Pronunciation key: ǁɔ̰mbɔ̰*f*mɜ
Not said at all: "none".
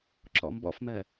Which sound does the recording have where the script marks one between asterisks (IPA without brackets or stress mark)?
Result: f